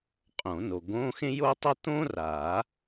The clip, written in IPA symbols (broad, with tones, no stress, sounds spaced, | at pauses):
qʼ õ˨˩˦ n o˨ ɡ õ˧˥˧ x ẽ˥ j o˥ tˤ ə˥ t̪ õ˥ r a˨˩˦